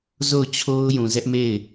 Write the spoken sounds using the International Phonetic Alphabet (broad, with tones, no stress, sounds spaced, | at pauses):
z o˦˨ ʊ̯ t͡ɕʰ o˦ ʊ̯ j ũ˨ z ɛ˦ ʔ m e˦˨ ɪ̯